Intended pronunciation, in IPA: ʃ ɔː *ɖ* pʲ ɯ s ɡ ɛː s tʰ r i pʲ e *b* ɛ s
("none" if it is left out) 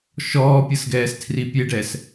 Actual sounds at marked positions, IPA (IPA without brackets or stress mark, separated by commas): none, ɖ